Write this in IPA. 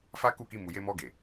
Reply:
fa˦ku˦˨ki˧ mu˨je˧mɔ˧ɡe˨

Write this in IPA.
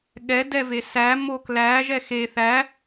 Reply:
ɠɛ dɛvesæ moklæ ʒɛxe θæ

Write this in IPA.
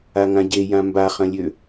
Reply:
aŋãɟejã mbaχɐ̃lʲø

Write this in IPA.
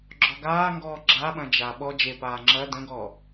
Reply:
ɡ͡ǁɔɡaːŋɡɔː ɡ͡ǁaɓɐ̃ d͡ʒa ɓɔ d͡ʒepaː ŋ͡ǁɐ də̃ɡɔ

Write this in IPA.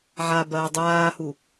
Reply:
ʕabɐː dˤaːhu

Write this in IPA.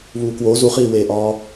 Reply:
βuːkwo zuχiːweːʔɒː

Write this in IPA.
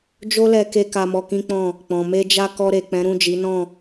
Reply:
d͡ʒo˦lɛ˧ke˧ ka˧mɔ˧kĩ˦k͡pɔ̃˦˨ | k͡pɔ̃˨me˧d͡ʒa˦ kɔ˧ɾe˨ k͡pɛ̃˨˦ɾũ˦˨d͡ʒi˨˦nɔ̃˦˨

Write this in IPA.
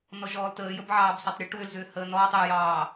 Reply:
nɔʒɔːltəːjəb ʕɑːbsɔtˤɾʲɔʈ wʏlzʏː həːnɔːtˤ ʏjɑː

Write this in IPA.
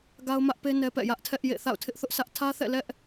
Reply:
ɡa˦ʊ̯mä˦ʔpe˦ nɛ˦pɛ̰˦˨ jä˦ʔtʰɛ˦ʔjḛ˦˨ θa̰˦˨ʊ̯tʰɪ˦ʔθʊ˦ʔsʰä˦ʔ tʰä˦θɛ̰˦˨ lɛ˦ʔ

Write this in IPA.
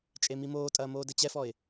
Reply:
t͡ʃʼemimoːtʼɐː moːdɘt͡ɕɛfɔɪ̯

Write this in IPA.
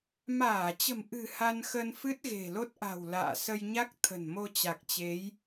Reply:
maː˧˩t͡ɕə̤˨˩mʔɨ̤˨˩ ha˧nxə˧n fɨ˦˥t̚ɣe̤˨˩lo˦˥t̚ʔa̤˨˩w la̰ː˧˨sə˧j ɲa˦˥k̚t̪ʰə̤˨˩n mo˧t͡ɕa˨˩k̚t͡ɕe˨˦j

